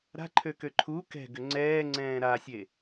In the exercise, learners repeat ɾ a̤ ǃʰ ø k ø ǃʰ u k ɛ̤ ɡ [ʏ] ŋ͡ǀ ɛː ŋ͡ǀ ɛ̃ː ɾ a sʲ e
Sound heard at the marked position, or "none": ʏ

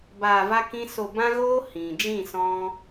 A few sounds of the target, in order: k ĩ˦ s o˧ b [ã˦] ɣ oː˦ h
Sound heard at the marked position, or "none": ã˦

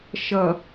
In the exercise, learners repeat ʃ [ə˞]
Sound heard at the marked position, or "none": ʌ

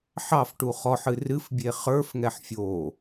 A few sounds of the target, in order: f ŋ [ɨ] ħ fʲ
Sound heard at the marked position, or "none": ɛ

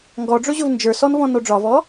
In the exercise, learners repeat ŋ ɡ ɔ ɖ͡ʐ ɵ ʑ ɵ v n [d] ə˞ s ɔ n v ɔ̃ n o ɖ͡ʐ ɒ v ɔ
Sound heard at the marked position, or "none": d͡ʒ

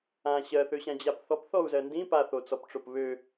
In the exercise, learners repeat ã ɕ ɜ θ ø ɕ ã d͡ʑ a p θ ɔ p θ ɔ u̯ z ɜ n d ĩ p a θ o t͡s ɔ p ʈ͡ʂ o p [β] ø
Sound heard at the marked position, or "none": β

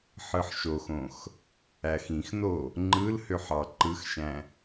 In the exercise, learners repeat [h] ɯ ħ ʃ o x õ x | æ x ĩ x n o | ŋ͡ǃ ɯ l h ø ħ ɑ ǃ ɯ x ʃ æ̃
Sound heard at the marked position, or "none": ħ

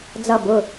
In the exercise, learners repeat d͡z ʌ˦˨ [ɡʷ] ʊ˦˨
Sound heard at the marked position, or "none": b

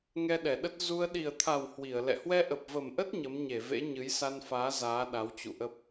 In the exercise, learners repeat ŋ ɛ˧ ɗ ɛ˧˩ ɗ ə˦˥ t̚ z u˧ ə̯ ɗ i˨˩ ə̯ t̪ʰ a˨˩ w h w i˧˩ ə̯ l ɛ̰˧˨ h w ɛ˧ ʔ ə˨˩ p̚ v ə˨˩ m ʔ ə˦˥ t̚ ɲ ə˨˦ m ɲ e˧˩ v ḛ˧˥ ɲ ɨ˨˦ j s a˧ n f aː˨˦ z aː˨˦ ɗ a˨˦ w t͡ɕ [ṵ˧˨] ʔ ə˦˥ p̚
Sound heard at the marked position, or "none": ṵ˧˨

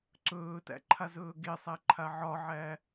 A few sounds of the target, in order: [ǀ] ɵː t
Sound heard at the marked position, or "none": ǀ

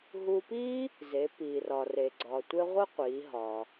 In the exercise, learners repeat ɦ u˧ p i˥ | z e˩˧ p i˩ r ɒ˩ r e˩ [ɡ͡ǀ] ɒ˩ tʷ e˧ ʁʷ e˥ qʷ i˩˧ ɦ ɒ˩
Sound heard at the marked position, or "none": ɡ͡ǀ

